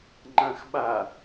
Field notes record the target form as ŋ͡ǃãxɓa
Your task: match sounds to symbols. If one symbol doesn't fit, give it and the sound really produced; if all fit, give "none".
none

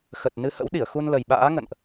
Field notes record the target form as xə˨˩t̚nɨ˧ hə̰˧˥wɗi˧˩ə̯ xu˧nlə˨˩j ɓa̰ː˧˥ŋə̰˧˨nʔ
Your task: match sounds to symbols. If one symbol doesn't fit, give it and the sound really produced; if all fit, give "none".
none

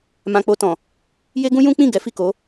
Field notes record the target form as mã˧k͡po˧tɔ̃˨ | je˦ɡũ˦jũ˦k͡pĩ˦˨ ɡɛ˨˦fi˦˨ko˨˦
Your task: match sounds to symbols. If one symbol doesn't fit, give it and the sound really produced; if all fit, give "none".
none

